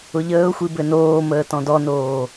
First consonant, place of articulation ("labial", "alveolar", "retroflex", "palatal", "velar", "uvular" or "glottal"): palatal